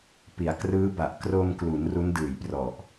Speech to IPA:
p i˩˦ a̯ k r ɯː˦˥ b a˨˩ ʔ k r o˧ m k l u˩˦ n r u˦˥ n d ɯː˨˩ j p r ɔ˨˩ ʔ

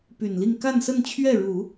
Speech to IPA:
p y˨˩ n l i˥˧ ŋ k a˥˧ n s ə˥˧ n t͡ɕʰ ɥ ɛ˥˩ ɻ u˨˩˦

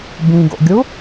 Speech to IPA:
b ĩ ɡ o̰ ɡʲ u

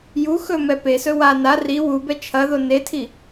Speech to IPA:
j u x ɵ m ɛ p e s ɵ w a n a r i w u b ɛ t͡ʃʰ ɐ ð o n e tʰ i

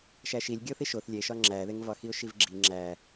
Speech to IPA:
ʃ æ ʃ i lʲ ɡʲ o θ i ʃ o θ lʲ e ʃ ɒ ŋ͡ǁ æ ð e ŋ v ɒ x i ʊ̯ ʃ i v ɡ͡ǁ i ŋ͡ǁ æ

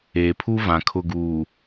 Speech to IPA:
eː˨ pʰ u˦ v ã˨ kʰ ʊ˨ ɡ uː˨

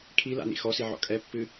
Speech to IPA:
kʰ i l a̰ n ḭ x ɔ s i ʕ ɔ̰ kʼ ɛ pː ɨ

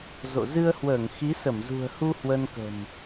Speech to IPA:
z o̰˧˨ z ɨ˧ ə̯ h w əː˧˩ ŋ x i˨˦ s ə˧˩ m z ṳ˨˩ ə̯ h u˧ h w ə˧ n k ə̤˨˩ m

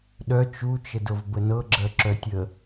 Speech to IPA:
ɗ œ t͡ʃ u t͡ʃ ə d ɤ v b ə n ɤ ɡ͡ǁ ɜ ǁ œ tʲ ə

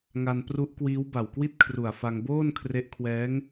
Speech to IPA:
ŋ a˧ n p r u˦˥ ʔ k w iː˦˥ w b a˨˩ w k w i˥˩ t̚ kʰ r u˨˩ a̯ f a˧ ŋ b oː˥˩ n kʰ r e˦˥ ʔ kʰ w ɛː˦˥ ŋ

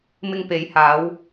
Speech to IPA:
m ɪ˧ ŋ p e˨˧ j h aː˨˧ w

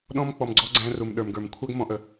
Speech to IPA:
ɗ ɔ̃˧ m k͡p ɔ˨ m ɡ͡ǀ ɔ˧ ɡ͡ǀ æ̃˧ r u˨ m ɗ ə˞˨ m ɡ ə˞˨ m kʷʰ æ˦ ɡ m ɔ̃˦ ʔ ə˧

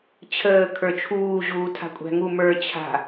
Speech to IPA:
t͡ɕʰ əː kʰ ə˞ t͡ʃʰ uː ʑ uː tʰ a̤ kʷʼ æ̤ ŋ u m ə˞ t͡ɕʰ a̤

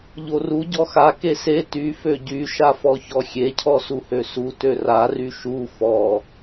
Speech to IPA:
ʎ o r u ɟ ɔ x a k e s e t y f ø ɟ y ʃ a f ɔ ç ɔ xʲ e cʰ ɔ s u h ø s u t ø r a r y ʃ u f ɔ

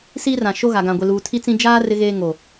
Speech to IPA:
s iː˦ r ã˨ ʃ o˦ ɣ a˨ ɡ ã˨ ɡʷ ɪ˨ l uː˨ tʰ i˦ t͡s ĩ˦ d͡ʒ aː˦ r ɪ˦ ɣ eː˦ ŋ o˨

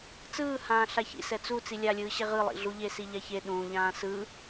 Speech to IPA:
t͡s ɯː h ãː ɬ a ç ḭ s ɛ t͡s u t͡s i lʲ a lʲ ɯː ɕ e ʁ ɯ lˠ ḭ ɮ u ʎ e s i ʎ a ç e ɗ ũː ʎ ãː s ɯ

